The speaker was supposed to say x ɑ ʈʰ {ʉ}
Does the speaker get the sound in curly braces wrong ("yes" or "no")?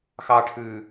no